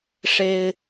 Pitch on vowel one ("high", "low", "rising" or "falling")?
high